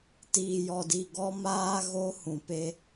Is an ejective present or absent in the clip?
absent